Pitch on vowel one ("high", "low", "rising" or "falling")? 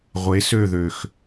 rising